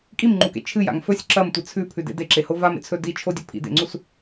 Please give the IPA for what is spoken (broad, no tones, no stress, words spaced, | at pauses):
kʼimŋ͡ǃukḛ t͡ʃʰɨja̰ŋ fɵsʲ ǁɐmtʷɨ t͡sʰʉpʰʉdḛ deǁeho vamḛt͡sʰɵ dit͡ʃʰodʲɵ pʰḭdḛŋ͡ǀus